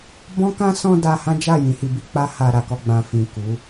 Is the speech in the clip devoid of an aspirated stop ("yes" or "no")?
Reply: yes